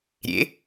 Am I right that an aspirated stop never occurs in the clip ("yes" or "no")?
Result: yes